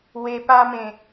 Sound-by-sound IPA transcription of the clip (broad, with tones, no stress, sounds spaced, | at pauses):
w e˧ p a˦ m ẽ˨˩